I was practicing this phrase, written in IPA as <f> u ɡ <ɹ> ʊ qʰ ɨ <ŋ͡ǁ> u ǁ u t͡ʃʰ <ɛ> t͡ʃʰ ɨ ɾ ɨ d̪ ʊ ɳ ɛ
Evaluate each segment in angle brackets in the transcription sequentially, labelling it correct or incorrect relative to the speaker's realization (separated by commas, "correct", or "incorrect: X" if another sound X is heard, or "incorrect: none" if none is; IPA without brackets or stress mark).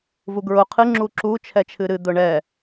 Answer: incorrect: v, correct, correct, correct